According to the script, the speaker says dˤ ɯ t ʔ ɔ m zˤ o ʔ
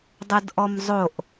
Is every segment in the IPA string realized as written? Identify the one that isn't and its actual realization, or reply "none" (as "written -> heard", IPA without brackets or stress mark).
t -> d